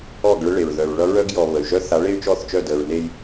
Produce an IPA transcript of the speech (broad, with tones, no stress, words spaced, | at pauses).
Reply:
ɔ˦˨ɡ ɭə˦ɭe˨ɹ ðœ˨ɹɭʌ˦ ɹœ˦ɡjɔ˨ βə˨y̯ ʒœ˦ θa˨˦ɭe˦y̯t͡ʃɔ˦˨θ t͡ʃœ˦˨dəː˨ɹne˦j